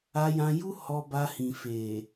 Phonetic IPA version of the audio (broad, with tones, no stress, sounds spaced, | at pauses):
a˧ j ã˧ j u˦ h ɔ˧ b a˧ h ĩ˨ f e˨